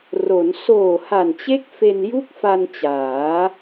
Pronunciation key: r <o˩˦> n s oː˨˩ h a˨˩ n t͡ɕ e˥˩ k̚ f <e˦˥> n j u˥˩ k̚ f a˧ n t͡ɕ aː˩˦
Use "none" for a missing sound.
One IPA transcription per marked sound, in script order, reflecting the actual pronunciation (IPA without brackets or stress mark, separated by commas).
o˩˦, e˧